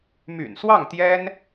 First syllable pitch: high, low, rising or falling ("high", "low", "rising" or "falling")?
low